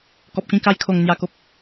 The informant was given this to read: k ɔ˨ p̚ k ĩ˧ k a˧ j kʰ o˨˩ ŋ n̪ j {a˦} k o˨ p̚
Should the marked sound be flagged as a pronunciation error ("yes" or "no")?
yes